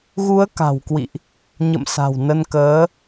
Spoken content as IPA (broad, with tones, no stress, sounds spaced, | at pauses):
ɣ u˨˦ ə̯ k a̤˨˩ w k w ḭ˧˨ ʔ | ɲ ə̰˧˨ m s a̤˨˩ w n ə˧ n k əː˨˦